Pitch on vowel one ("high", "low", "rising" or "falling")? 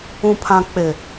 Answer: low